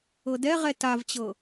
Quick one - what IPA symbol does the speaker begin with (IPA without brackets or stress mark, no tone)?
ɤ